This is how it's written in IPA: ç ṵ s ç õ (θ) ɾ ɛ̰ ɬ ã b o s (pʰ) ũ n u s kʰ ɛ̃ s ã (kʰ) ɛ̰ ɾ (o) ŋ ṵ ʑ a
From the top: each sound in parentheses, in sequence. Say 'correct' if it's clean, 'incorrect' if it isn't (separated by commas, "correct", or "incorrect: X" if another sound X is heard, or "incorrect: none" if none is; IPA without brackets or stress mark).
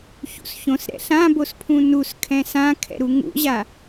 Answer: incorrect: s, correct, correct, incorrect: u